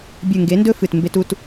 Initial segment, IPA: bʲ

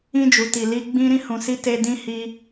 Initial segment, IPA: ĩ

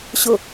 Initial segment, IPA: ɕ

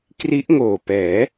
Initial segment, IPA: k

